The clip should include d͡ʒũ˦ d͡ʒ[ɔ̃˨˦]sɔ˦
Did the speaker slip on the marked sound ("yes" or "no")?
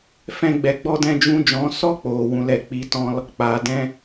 no